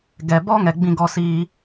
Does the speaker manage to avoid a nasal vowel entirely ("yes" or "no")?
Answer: no